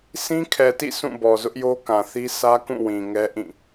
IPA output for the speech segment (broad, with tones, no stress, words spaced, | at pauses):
sʰĩ˦ kʰɛ˨tḭ˦˨ sʰũ˦˨bɔ˨ zʊ˦ʔjo˦kã˨θi˦ sʰä˦kũ˦˨wĩ˨ ŋɛ˦ʔĩ˦˨